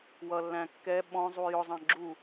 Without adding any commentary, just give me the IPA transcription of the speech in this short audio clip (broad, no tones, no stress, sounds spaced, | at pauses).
w ʌ lː æ̃ kː ɛ ɓ ɔ̃ zˤ u j ʊ zˤ ɑ̃ ɡ͡ǁ u